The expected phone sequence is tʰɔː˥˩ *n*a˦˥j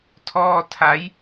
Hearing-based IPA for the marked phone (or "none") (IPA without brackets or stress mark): tʰ